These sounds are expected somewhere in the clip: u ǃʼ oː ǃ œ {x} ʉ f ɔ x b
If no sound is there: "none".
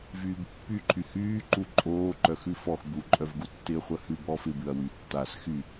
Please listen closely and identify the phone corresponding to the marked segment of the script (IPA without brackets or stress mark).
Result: x